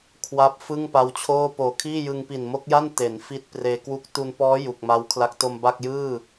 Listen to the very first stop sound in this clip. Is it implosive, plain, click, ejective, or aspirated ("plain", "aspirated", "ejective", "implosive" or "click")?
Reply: aspirated